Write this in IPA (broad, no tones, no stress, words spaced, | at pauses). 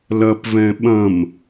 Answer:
lɐpvɛ̃ ɓɐ̃m